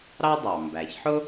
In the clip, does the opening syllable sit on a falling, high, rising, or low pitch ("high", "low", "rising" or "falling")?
high